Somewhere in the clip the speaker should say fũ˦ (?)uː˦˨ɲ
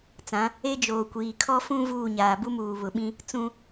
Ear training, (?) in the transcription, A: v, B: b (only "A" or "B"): A